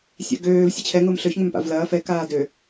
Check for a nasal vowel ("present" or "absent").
absent